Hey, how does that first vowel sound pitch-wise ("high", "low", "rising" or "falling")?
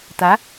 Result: rising